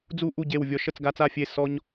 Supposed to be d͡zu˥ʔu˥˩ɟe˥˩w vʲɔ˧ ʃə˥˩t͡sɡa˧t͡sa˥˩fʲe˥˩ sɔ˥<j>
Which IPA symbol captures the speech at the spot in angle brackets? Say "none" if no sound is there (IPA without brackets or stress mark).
ɲ